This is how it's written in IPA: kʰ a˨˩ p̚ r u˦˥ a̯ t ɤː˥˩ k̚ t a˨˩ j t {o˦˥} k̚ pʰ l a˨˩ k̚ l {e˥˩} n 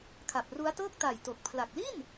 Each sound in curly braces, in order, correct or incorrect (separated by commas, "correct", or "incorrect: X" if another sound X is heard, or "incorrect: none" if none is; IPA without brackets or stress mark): incorrect: o˨˩, incorrect: i˥˩